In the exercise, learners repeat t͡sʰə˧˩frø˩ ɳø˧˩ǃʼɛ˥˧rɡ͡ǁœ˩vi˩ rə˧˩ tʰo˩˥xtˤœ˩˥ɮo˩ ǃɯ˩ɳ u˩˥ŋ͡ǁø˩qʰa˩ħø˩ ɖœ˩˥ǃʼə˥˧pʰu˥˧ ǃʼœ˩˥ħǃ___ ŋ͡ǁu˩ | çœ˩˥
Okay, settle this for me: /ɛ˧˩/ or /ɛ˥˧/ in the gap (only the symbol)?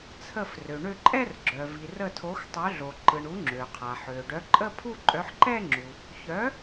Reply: ɛ˥˧